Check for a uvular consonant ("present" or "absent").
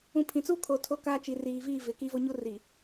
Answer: absent